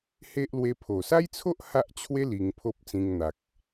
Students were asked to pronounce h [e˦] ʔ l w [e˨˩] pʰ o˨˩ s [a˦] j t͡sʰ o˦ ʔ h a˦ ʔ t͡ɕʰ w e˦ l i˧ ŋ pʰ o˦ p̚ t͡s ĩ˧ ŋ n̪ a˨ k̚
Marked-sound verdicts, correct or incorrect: correct, incorrect, correct

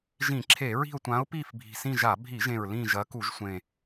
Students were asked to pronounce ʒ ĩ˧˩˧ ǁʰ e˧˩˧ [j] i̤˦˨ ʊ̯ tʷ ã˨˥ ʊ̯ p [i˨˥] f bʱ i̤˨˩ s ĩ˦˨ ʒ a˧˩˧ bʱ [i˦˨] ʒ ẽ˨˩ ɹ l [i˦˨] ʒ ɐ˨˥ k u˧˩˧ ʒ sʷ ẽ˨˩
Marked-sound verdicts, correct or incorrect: incorrect, incorrect, incorrect, incorrect

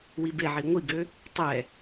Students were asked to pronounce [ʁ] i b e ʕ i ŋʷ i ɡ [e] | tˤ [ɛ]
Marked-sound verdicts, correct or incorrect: incorrect, incorrect, correct

